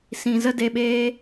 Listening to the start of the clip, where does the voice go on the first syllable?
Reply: low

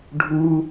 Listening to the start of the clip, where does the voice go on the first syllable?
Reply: high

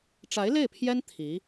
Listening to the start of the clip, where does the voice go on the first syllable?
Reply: rising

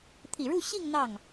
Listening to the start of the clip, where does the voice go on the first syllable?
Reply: low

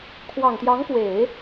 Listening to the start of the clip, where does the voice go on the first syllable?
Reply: low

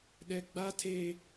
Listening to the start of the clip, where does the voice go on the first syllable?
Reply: high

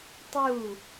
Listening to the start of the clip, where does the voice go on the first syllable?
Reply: falling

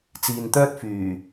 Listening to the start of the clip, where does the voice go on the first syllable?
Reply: low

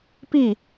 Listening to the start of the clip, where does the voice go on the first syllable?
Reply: falling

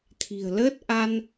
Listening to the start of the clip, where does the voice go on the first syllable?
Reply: low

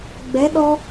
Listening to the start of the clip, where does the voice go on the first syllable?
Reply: rising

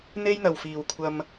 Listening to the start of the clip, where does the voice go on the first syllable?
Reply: high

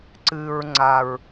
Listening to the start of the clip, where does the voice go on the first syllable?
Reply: low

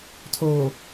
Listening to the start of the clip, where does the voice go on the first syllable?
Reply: low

